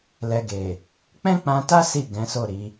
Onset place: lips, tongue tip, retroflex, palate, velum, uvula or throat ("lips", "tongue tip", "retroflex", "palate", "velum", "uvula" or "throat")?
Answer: tongue tip